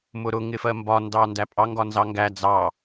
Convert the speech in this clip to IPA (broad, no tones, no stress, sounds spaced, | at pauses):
m ʊ ɾ ʊ ŋ ɪ f ɜ m b ɒ n d ɑ n d æ pʼ ɑ ŋ ɡ ɒ n z ɑ ŋ ɡ æ d͡z ɑ